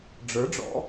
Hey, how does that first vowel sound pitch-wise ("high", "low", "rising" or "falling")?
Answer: rising